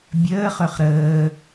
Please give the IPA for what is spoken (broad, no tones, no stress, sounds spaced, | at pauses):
bʲ əː χ ø χ ɾ əː